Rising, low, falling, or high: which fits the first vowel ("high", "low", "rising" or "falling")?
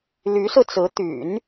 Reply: rising